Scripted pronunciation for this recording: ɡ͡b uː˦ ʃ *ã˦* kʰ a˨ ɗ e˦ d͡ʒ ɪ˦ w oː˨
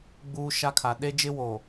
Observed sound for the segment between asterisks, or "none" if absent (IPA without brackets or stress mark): a˦